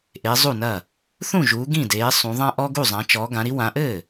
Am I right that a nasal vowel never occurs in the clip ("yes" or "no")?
no